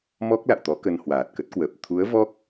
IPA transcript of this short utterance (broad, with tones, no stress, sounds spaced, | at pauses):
m ɔ˦˥ k̚ l a̰˧˨ w t̪ ɔ˨˦ k ə˧ n h w aː˨˩ t̚ k ə˦˥ t̚ k w əː˨˩ p̚ t̪ʰ u˨˦ ə̯ v ɔ˦˥ k̚